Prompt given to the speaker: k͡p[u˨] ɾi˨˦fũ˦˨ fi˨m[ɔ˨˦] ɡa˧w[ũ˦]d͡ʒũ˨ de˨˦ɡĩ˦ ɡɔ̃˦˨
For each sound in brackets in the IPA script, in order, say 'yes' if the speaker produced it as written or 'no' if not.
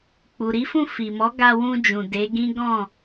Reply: yes, yes, no

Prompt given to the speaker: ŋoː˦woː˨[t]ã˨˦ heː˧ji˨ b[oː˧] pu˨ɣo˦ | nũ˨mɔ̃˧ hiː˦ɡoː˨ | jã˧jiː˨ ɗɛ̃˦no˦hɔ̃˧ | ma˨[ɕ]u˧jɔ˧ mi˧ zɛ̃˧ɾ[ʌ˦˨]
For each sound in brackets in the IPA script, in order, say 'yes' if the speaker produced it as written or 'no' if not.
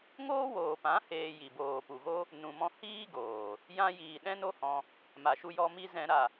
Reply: no, no, no, no

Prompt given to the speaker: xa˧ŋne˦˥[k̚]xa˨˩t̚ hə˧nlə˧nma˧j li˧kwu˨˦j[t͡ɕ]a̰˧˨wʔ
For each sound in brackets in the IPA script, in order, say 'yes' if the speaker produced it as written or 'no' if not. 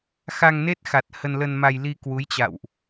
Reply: no, yes

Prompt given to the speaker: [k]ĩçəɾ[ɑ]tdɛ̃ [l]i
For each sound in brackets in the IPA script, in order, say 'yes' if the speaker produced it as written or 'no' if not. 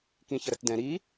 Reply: yes, no, no

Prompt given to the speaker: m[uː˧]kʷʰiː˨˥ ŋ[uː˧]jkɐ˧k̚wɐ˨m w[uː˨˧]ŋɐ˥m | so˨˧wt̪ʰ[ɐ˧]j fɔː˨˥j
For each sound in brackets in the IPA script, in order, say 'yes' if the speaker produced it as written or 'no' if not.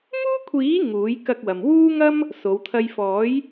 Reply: no, no, no, yes

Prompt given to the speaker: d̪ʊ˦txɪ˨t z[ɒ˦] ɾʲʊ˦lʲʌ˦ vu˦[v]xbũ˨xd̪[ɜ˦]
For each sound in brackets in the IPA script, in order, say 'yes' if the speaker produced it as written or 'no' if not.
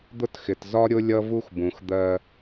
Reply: yes, no, yes

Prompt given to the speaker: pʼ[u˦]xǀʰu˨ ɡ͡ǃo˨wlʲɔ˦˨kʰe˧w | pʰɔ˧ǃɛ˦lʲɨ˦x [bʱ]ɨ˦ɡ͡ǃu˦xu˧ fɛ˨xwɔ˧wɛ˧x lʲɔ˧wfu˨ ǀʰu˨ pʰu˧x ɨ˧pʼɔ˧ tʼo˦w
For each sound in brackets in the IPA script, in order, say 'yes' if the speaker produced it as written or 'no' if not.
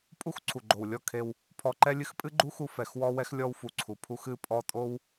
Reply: yes, no

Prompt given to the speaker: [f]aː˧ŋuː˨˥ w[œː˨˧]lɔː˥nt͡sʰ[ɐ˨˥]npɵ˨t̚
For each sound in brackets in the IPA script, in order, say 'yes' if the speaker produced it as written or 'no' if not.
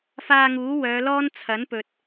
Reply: yes, yes, yes

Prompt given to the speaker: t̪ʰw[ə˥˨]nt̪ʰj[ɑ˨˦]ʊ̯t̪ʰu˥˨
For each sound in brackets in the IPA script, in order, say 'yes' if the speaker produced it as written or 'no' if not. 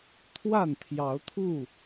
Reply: no, yes

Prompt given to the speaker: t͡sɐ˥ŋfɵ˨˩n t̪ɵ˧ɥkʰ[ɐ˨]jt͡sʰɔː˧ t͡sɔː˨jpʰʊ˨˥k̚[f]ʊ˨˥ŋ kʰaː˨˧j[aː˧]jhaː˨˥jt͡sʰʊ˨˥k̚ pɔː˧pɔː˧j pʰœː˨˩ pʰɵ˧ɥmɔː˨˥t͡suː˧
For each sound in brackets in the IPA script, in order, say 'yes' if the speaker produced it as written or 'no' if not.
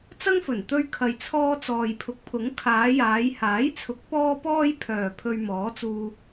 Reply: yes, no, no

